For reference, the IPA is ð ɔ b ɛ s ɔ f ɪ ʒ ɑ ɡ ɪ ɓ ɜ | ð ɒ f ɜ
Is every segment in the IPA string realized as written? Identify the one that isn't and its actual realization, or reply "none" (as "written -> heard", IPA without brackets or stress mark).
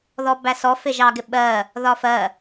ɛ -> æ